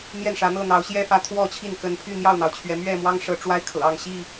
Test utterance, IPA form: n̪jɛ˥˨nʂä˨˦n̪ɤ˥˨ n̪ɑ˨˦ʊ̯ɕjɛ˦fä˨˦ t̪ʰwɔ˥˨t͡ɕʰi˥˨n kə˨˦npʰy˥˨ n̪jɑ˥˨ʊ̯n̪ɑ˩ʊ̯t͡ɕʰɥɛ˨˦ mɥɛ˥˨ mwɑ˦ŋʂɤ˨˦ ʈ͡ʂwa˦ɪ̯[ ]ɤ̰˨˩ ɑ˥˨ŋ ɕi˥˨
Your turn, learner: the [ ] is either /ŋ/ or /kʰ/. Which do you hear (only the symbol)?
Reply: kʰ